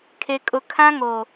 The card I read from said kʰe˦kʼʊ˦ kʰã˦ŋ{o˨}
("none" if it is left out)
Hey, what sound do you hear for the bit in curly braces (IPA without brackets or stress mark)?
o˨